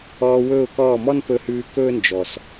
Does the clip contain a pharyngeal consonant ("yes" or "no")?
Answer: no